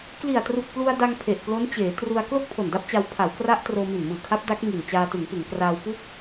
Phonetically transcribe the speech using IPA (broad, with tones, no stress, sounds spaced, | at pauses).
k l i˨˩ a̯ t r u˨˩ k̚ p l u˧ a̯ d a˧ ŋ pʰ e˨˩ ʔ p l o˦˥ n t͡ɕ eː˩˦ t r u˧ a̯ k l o˥˩ k̚ pʰ o˨˩ n d a˦˥ p̚ t͡ɕ a˧ w pʰ a˩˦ w k r a˦˥ ʔ t r oː˧ m i˨˩ n m ɯː˨˩ kʰ a˦˥ p̚ d a˦˥ k̚ ŋ i˨˩ n t͡ɕ aː˧ t ɯ˩˦ ŋ p ɯ˩˦ ŋ k r aː˧ w p u˥˩ k̚